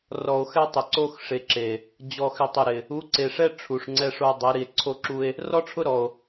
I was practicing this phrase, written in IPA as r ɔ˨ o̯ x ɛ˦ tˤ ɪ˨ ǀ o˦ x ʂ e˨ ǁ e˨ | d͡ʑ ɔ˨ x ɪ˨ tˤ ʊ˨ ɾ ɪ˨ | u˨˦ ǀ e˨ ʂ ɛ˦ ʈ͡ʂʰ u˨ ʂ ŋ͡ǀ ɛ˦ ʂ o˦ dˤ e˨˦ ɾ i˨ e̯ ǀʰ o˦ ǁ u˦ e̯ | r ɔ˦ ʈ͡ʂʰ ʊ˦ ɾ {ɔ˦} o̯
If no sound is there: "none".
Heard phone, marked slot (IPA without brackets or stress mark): ɔ˨